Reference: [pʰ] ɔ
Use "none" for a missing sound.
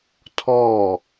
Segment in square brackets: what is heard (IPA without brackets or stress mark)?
tʰ